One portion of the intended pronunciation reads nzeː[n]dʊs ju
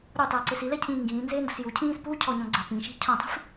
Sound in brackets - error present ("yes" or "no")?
no